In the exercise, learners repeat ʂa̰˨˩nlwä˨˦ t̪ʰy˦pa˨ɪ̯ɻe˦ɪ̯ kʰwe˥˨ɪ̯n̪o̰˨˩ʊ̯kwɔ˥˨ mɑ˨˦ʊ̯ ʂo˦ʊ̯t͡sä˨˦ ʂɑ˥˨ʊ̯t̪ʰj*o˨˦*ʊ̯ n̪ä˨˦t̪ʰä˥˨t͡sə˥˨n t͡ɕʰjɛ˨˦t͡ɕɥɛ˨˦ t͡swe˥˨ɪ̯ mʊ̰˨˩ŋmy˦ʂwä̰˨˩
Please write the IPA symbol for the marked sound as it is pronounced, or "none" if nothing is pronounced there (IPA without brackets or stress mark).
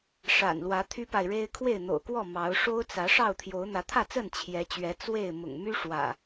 o˨˦